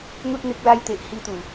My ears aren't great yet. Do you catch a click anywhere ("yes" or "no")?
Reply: no